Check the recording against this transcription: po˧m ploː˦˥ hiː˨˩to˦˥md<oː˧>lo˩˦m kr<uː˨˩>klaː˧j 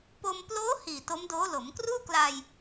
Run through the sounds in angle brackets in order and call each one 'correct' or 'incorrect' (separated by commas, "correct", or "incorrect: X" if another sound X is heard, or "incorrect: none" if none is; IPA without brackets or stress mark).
incorrect: oː˦˥, incorrect: uː˥˩